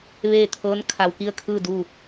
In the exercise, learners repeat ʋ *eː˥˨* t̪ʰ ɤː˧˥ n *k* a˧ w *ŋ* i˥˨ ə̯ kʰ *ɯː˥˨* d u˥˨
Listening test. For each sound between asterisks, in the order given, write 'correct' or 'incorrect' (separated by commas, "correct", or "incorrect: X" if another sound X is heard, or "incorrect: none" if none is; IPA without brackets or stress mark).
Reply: correct, incorrect: kʰ, incorrect: k, correct